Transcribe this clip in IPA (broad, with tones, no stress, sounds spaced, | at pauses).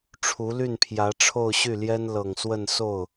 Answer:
ʈ͡ʂʰ u˧˥ l y˥˩ n pʰ j ä˧˥ ʈ͡ʂʰ o˥˧ ʊ̯ ɕ y˥˩ l j ɛ˥ n l ɤ˨˩ ŋ s w ə˥˧ n s o˥˩ ʊ̯